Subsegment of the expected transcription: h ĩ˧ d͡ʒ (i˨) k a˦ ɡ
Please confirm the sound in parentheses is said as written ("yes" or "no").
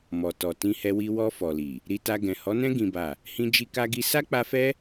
no